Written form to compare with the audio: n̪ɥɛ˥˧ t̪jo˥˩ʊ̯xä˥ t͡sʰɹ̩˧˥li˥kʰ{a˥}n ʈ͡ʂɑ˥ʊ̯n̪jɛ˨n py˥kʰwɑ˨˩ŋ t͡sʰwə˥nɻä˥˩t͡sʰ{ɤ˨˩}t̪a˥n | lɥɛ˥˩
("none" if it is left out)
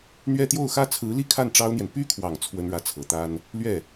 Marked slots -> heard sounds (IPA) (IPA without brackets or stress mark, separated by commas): a˥˩, ɤ˨˩